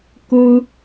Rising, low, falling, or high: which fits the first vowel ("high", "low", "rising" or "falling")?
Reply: high